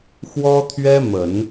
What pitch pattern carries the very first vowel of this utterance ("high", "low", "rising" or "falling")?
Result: high